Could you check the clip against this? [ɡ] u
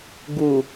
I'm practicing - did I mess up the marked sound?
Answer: no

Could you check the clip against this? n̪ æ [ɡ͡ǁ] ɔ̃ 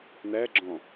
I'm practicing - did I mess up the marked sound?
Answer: no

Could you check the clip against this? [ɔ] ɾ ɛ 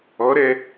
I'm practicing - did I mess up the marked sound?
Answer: no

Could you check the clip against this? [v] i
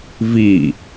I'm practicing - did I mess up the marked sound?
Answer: no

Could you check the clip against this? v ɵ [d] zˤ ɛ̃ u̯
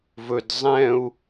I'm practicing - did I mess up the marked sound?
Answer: no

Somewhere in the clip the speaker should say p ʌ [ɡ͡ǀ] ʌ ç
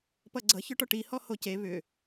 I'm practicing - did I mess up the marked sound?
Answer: no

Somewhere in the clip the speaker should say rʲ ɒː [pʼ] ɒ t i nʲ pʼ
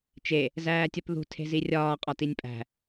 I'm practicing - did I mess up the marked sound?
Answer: yes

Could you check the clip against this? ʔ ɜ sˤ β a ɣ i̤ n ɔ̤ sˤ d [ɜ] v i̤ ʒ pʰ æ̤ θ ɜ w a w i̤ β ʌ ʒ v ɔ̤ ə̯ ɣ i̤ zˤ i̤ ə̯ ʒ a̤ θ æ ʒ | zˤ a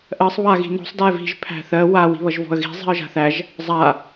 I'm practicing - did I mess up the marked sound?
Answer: yes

